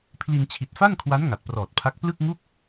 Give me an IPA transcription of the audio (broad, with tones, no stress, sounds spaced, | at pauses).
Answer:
pʰ l i˧ n t͡ɕʰ i˨˩ t̚ f a˥˩ n kʰ w a˦˥ n ŋ a˨˩ t̚ p r ɔː˨˩ t̚ pʰ a˦˥ k̚ p l ɯ˥˩ k̚ ŋ u˥˩ k̚